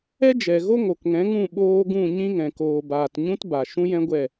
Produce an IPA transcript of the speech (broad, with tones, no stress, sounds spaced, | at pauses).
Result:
ɛ˦ d͡ʒ ɛ˨ ɣ o˦ ŋ o˨ k ŋ ɛ̃˨˦ ŋ ũ˦˨ ɓ oː˧ ɡ ũ˦˨ ɲ ĩ˦ ŋ ɛ̃˨ k oː˨ b aː˨ t ɲ ũ˦ t b a˨ ʃ ũ˦ j ɛ̃˦ ɡʷ ɛ˦˨